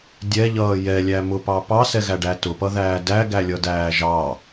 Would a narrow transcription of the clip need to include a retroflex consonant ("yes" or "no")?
yes